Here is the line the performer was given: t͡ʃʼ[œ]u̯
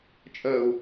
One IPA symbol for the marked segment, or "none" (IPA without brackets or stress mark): œ